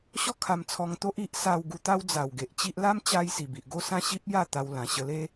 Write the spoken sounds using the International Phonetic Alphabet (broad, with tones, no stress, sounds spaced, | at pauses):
ɕ ɔ˥˧ kʰ a˧ m t͡sʰ ɔ˧ ŋ t̪ o˦ ʔ i˦ ʔ s a˧ w ɡ u˧ t̪ a˦ w d͡z a˨˩ w ɡ e˨ ʔ t͡ɕ i˦ ʔ l a˦ m t͡ɕ a˧ j s i˨˩ b i˨ ʔ ɡ o˥˧ s ã˥˧ ɕ i˦ p̚ j a˥˧ t̪ a˧ w l ã˨˩ ɕ ə˧ l e˦